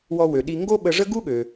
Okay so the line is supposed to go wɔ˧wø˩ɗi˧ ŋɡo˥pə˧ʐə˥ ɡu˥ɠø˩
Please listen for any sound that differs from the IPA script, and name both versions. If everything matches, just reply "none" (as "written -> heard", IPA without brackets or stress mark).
p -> ɓ